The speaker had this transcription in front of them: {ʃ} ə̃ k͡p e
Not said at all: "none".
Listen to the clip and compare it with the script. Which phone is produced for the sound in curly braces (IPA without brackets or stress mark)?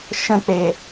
ʃ